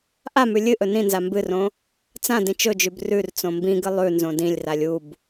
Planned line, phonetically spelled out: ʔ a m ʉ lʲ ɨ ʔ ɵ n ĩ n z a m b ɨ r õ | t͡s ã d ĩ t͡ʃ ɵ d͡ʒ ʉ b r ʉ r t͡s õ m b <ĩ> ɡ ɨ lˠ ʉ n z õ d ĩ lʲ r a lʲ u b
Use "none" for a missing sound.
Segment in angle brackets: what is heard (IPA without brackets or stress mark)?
ĩ